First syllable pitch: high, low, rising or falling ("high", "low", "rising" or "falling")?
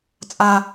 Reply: high